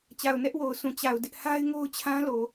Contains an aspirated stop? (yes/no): yes